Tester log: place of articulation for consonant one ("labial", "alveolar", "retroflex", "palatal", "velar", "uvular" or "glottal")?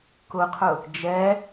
velar